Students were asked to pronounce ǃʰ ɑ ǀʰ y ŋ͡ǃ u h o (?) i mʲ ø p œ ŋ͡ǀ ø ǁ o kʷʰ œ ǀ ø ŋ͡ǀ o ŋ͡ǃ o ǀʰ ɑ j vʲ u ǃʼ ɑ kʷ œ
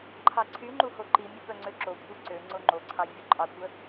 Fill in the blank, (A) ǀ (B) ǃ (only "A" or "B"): B